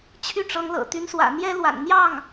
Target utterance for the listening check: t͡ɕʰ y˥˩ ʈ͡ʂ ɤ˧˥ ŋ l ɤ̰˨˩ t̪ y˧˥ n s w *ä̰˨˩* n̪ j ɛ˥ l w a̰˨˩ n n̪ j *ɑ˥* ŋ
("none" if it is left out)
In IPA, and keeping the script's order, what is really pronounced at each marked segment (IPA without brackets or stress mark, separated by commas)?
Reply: ä̰˨˩, ɑ˥˩